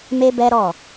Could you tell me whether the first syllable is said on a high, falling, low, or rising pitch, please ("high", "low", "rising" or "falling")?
high